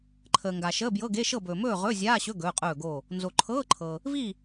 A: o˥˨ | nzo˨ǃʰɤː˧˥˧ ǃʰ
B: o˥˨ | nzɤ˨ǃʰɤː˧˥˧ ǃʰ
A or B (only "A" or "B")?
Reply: A